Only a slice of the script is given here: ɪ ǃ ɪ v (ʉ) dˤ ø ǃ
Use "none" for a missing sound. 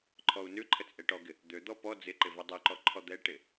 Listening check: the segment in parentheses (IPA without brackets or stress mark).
ø